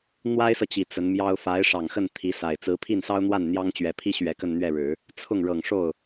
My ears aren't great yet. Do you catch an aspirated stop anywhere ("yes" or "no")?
yes